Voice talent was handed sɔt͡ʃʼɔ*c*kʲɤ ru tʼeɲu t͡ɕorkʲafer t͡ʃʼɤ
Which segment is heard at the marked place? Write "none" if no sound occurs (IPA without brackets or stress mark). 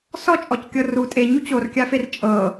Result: c